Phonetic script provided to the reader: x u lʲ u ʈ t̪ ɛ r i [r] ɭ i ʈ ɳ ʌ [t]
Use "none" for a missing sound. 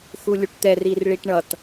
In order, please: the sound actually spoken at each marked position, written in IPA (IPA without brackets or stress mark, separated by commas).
r, t